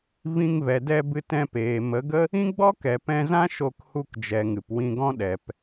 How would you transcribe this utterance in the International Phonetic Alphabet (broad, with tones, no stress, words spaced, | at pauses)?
vĩ˧ŋvɛ˨dɛ˧bɨ˧t ɛ̃˧peː˨mə˨˦ɡə˦ | ĩ˦ɡ͡bɔ˦kɛ˨ pɛ̃˧zã˦ ʃo˧khu˧kd͡ʒɛ˨ ŋɨ˨pwĩ˧ɡɔ̃˦ ɗɛ˨p